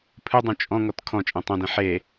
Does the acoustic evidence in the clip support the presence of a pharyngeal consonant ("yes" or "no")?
yes